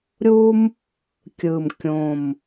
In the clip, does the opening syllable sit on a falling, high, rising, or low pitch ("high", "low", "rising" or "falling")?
high